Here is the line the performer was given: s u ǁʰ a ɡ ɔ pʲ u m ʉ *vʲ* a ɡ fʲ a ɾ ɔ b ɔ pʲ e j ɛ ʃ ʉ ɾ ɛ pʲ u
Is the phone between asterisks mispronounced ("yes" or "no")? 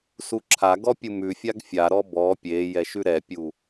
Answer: yes